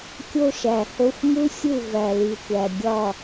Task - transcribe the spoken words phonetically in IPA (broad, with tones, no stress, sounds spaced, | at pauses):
kʲ o˦ ʃ æ˨ h o˦ xʷ m u˦ sʲ u˦˨ v æ˨ l i˨ tʷ æ˨ ɡʲ ɒ˦˨